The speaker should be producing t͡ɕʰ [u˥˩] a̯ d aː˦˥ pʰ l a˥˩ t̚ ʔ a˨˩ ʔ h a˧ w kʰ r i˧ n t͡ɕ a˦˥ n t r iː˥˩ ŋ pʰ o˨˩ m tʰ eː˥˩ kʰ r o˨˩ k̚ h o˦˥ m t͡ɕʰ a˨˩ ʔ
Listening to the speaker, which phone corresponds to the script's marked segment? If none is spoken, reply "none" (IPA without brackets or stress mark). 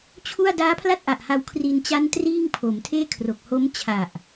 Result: u˥˩